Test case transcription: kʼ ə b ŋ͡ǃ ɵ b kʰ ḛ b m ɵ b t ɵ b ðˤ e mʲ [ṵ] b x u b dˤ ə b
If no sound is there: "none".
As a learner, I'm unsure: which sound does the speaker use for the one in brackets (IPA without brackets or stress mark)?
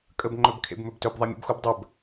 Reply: ṵ